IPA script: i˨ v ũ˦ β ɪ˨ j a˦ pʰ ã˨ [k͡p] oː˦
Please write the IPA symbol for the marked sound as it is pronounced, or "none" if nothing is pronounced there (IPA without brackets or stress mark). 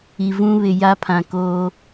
k